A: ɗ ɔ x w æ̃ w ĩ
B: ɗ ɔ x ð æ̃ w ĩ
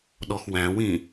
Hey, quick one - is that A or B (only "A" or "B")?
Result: A